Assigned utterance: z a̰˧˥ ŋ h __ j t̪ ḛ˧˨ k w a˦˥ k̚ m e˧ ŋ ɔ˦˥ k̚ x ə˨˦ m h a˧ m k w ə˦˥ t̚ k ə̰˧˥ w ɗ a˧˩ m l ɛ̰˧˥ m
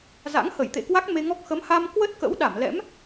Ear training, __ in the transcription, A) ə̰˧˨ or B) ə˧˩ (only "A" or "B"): B